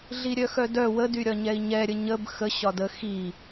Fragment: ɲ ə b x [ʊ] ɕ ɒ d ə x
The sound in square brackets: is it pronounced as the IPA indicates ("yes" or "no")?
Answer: no